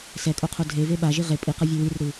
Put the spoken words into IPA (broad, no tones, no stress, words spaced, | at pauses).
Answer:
sɛkʼoqʰo dʱeve ɓaʒi ʁe pʼiqʌvʲʌ wirɾɯ